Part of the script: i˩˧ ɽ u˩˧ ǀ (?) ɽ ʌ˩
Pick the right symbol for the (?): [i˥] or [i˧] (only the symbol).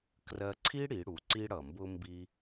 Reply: i˧